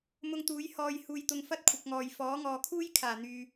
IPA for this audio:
m ʊ˧ ŋ t̪ uː˨˥ j h ɔː˧ j h uː˧ j t̪ ʊ˧ ŋ f ɐ˥ t̚ kʷʰ ɪ˨ k̚ ŋ ɔː˨ j f ɔː˨˥ ŋ ɔː˨ kʰ uː˥ j kʰ aː˨˩ n̪ yː˧

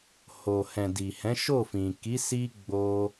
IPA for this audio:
h o˨ h ɛ̃˨ d i˨ h ɛ̃˨˦ ʃ o˦˨ f ĩ˨ k i˨˦ s i˧ ɡ͡b o˧

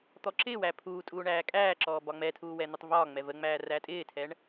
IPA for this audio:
t̪ ɔ ǁ ɪː w æ pʰ uː tʼ uː ɳ æː kʼ æː ǁ ɔː b ɒ ŋ͡m ɛ tʰ uː w ɛ n̪ ɪ tˤ v ɒː ŋ͡m ɛ v ə ŋ͡m æː r æ tʼ ɪː tʰ ɛ ɳ

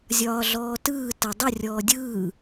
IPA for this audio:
zʲ ɒː ɮ ɔː t ɯː t ɤ dˤ ə rʲ ɔː dʲ ɯː

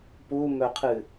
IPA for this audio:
p u m œ qʰ ɨ

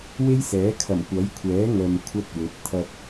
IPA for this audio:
w e˥ j s ɛː˨˥ kʰ ɐ˨˩ m kʷ ɐ˨˥ j kʷʰ ɛː˨˥ ŋ œː˨ m kʷʰ ɐ˥ t̚ w ɵ˨˥ t̚ t̪ʰ ɐ˧ t̚

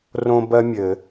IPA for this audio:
r õ˥ b ɜ˥ mʲ ɘ˨˩˦

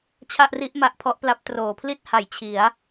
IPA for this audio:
t͡ɕʰ a˥˩ ʔ r i˥˩ ʔ m a˦˥ ʔ pʰ ɔ˦˥ ʔ p l a˦˥ p̚ t r oː˩˦ pʰ l i˥˩ t̚ h a˩˦ j t͡ɕʰ i˩˦ a̯

